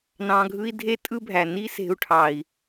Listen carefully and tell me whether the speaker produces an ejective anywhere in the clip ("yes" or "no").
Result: yes